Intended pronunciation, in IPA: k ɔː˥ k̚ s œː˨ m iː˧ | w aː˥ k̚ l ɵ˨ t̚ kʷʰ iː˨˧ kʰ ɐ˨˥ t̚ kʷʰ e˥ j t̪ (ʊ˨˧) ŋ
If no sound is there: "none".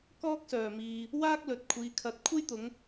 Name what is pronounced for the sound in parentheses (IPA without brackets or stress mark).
ʊ˨˧